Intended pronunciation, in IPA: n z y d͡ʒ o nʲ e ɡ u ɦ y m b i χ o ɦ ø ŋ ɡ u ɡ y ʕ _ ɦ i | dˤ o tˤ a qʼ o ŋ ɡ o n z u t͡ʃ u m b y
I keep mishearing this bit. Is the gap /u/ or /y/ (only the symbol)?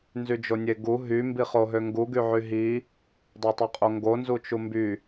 y